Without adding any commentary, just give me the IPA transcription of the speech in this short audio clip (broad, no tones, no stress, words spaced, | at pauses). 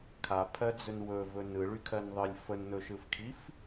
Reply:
kʰapʰɜd͡zɵn wɵvɵ nɯɭykʰɜnðˤɯlʲ fənn̪ɵʃɯfkʰif